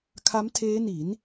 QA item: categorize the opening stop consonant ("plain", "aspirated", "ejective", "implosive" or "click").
aspirated